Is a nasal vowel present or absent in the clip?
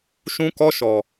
present